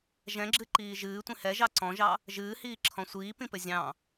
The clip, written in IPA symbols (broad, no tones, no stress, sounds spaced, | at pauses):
ʒ ɛ̃ ɡ͡ǁ ɨ ǃ iː ʒ ɨː tʷ ĩ h ɛ ʒ ɑ ǀ ɔ̃ ʒ ɑ | ʒ ɨː h iː ǁʰ ɔ̃ sʷ iː p ĩ p ɘ zʲ ɑ̃